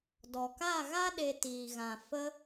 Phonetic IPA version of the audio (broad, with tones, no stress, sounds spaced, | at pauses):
d ɔ˨ k a˦˨ ɣ a˦ ɗ e˧ t iː˨ ɣ ã˨ f ə˧